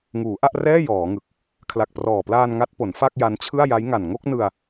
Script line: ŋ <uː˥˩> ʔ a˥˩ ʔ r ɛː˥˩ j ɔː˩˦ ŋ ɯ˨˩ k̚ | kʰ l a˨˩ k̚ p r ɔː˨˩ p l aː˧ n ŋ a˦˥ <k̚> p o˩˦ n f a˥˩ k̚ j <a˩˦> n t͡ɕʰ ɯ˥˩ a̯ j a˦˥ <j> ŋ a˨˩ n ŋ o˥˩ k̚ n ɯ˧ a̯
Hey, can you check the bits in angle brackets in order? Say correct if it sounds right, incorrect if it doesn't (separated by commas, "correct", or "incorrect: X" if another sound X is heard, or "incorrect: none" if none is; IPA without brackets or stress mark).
incorrect: uː˩˦, incorrect: t̚, incorrect: a˦˥, correct